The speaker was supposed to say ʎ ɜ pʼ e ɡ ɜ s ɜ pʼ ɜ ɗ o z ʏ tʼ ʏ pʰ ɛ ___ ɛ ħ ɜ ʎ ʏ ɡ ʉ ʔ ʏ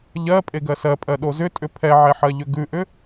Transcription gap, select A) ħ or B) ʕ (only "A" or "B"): B